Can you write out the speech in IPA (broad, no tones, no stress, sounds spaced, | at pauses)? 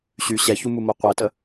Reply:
ɕ y ɕ ɛ ç u m u m o qʷ ɛ t ə